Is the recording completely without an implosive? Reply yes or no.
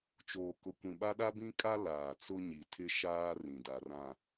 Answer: no